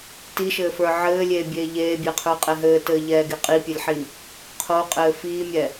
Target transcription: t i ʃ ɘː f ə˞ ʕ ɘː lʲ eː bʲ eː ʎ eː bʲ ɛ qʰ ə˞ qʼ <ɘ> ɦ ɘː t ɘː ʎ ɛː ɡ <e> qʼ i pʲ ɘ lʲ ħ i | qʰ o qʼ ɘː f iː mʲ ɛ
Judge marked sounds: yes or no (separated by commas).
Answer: no, yes